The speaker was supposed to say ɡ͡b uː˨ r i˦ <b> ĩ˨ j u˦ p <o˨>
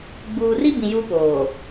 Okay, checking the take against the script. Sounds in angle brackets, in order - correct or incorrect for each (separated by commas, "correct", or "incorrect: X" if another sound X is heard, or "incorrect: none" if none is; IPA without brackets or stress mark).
correct, incorrect: oː˨